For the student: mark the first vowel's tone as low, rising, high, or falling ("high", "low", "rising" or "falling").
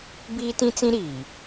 high